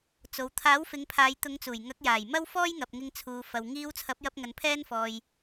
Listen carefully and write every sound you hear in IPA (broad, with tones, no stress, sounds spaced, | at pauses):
t͡s o˨ w t̪ʰ aː˨˥ w f ɪ˨˧ ŋ pʰ aː˨˧ j t̪ ʊ˨˧ ŋ t͡s uː˨˩ j ŋ ɐ˨˥ k̚ j aː˨˩ j m ɐ˥ w f ɔː˥ j ŋ ɐ˨ p̚ ŋ ɪ˧ ŋ t͡sʰ uː˨ f ɐ˨ w ŋ iː˧ w t͡sʰ ɐ˨˥ p̚ j ɐ˧ p̚ ŋ ɐ˨˧ n pʰ ɛː˥ n f ɔː˧ j